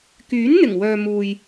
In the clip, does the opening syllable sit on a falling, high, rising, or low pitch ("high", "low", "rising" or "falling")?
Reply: rising